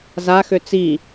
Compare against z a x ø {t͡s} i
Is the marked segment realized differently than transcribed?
no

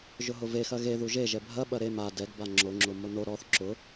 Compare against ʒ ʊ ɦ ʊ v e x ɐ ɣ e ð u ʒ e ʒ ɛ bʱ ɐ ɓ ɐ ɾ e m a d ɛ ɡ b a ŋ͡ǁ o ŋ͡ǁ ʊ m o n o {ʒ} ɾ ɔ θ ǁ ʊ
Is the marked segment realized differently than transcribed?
yes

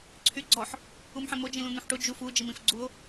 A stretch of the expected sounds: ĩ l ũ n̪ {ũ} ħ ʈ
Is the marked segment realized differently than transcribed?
no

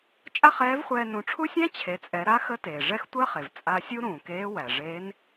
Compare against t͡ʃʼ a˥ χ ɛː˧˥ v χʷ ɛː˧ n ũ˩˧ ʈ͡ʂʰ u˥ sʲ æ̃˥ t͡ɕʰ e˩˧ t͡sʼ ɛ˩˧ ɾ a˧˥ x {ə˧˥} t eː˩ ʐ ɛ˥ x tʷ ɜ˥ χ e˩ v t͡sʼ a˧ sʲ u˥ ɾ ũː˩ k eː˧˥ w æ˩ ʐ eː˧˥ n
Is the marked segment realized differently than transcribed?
no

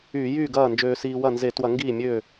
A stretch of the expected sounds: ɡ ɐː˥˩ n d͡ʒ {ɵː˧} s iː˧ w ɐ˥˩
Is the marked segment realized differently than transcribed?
yes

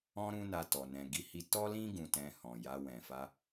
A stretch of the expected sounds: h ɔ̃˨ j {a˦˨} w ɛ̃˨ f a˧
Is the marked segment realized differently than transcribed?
yes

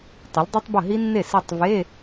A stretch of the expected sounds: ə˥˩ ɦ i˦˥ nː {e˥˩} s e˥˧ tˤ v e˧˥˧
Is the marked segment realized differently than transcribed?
no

